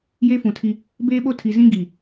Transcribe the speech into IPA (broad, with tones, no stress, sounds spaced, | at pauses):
j e˦ f ũ˨ tʰ i˦ | b eː˦ ɓ o˦ tʰ i˨ z ĩ˦ ɡ i˨